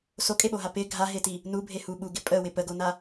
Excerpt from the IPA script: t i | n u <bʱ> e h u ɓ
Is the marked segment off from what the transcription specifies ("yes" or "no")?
no